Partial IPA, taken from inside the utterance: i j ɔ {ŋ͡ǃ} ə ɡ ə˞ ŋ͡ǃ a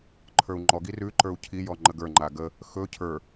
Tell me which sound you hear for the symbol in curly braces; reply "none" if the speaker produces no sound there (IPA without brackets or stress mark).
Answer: ŋ͡ǃ